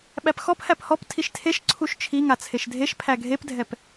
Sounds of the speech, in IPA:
ɓ æ p x ɔ p h æ p h ɔ p tʰ i ʃ tʰ e ʃ ǀʰ u ʃ t͡ʃʰ i ŋ a t͡sʰ e ʃ dʱ e ʃ pʰ æ ɡʱ e p dʱ ɛ p

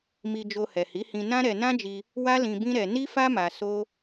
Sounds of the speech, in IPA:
m i˧ d͡ʒ o˧ h ɛ˨ h i˨˦ h ĩ˧ n ã˦ ɾ ɛ˧ n ã˦ d͡ʒ i˧ | w a˦ l ĩ˧ b ĩ˦ ɾ ɛ˧ n i˦ f a˦ m a˧ s o˦

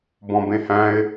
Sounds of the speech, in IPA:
b ɔ̃ b ẽ h æ̃ ɪ̯

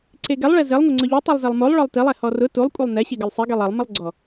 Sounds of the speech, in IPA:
ǀ e ɡ ɛ lˠ ɭ ɛ z ɪ lˠ ŋʷ e ŋ͡ǀ ʊ ʎ u tˤ u lˠ z e lˠ m o lˠ ɭ ɔ lˠ t i lˠ ɛ h ɔ r ʊ t u lˠ kʷʼ e lˠ n ɛ ɕ i ɡ ɪ lˠ sˤ i ɡ e lˠ ɛ lˠ m ɪ lˠ ɡ͡ǀ ɔ

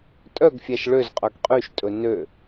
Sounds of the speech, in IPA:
tʼ œ ɡ fʲ æ ʃ ɭ ø z qʼ œ ɡ qʼ y ʃ tʼ ɵ n ø

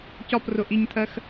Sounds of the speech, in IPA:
c ɒ p r ʊ ʔ i ɲ tʰ ɜ x

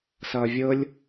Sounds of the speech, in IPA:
s ʌː vʲ ɤ lʲ

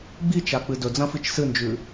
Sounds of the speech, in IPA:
ɡ͡b i t͡ʃ a k͡p ɨ d ɵ d͡z ɐ̃ f i t͡ʃ s ɨ n d͡ʒ ʉ

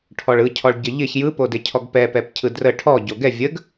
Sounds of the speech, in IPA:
ʈʰ ɔ ɭ ɯ cʰ ɔ ɭ ɟ ə ʎ ɪ ç j ɯ p o d ɪ cʰ ɔ ɡ p ɛ p ɛ p cʰ ɯ d r ə ʈʰ ɔ ɟ o ɡ ɛ vʲ ə ɡ

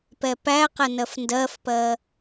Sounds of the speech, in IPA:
p ɛ p æ q ɛ n ɜ f n d ɜ f p ɜ

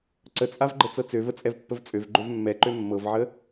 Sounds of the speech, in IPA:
ǀ ə t͡sʼ a v ɡ͡ǃ ə t͡s ɤ t͡s ø v ə t͡sʼ ɛ v pː ə v t͡sʼ ø v ɡ͡ǃ ø v mː ɛ ǃ ø mː ɤ v ʕ ə

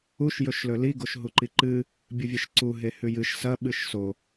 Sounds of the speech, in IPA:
u ʃ j ɵ ʃ l ɵ l i ɡ o ʃ ɦ u ǃ i ǃ ɨ | bʲ ɨ vʲ e ʃ ǀ u ɦ e h ʉ j ɨ ʃ s ɐ ɓ ɨ ʃ s o

